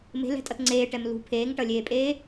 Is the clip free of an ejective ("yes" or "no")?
no